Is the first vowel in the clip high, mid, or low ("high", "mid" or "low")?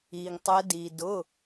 high